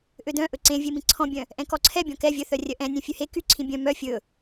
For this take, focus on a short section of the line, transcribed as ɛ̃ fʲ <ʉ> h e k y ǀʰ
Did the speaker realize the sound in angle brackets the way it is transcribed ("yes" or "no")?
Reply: yes